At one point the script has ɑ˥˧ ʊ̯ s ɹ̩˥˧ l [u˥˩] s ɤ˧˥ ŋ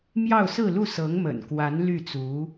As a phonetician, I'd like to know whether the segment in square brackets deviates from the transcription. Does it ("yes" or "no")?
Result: no